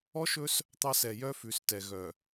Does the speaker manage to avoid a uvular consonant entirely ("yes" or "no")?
yes